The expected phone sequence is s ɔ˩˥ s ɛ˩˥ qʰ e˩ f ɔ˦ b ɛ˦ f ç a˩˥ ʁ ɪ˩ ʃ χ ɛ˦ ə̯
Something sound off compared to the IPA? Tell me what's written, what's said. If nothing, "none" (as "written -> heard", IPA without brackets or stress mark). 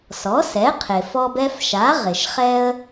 ç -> ʃ